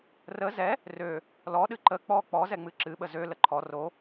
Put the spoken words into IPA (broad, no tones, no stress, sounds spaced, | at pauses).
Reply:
r ə z ɛ | r ø | l ɔ ɗ ɨ ǃ ə k͡p ɔ k͡p ɔ z ɛ ŋ͡m ɨ ǁ ɨ ɓ ə z ø l ə ǃʰ ɔ r o